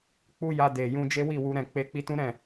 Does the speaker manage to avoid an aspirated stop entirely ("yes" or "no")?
yes